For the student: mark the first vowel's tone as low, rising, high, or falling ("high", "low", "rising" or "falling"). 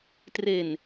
low